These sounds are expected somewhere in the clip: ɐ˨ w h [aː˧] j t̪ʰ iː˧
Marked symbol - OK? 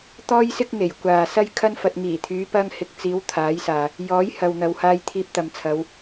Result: yes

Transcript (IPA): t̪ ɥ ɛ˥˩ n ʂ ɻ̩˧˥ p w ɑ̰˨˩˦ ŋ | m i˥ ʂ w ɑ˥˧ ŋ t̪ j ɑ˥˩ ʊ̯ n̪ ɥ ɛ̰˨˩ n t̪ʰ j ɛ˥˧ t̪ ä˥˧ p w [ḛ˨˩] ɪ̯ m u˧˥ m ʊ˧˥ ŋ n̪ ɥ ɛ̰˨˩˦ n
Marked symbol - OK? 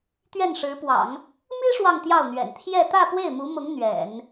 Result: no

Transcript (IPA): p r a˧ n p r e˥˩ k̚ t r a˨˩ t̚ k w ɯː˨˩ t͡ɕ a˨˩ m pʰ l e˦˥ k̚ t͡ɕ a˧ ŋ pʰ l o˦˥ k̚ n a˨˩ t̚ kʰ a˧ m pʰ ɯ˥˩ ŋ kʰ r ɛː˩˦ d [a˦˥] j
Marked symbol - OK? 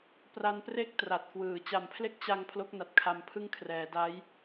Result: yes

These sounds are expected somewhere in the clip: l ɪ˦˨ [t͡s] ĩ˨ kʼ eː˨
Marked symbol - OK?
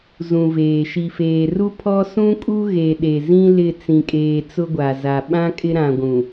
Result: yes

